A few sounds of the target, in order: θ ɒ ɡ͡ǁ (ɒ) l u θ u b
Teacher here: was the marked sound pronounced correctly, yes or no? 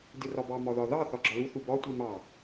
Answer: yes